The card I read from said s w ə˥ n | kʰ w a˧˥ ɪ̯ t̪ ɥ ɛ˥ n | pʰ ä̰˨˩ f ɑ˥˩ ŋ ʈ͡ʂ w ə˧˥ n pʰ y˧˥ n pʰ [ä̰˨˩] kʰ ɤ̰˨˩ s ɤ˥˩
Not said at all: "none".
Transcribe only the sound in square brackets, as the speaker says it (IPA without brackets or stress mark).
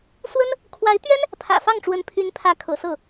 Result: ä˧˥